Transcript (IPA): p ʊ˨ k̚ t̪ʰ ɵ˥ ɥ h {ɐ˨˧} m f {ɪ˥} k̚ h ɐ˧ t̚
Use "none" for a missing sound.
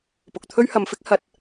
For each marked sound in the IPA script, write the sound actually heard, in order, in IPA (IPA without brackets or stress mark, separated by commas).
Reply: ɐ˨˧, ɪ˥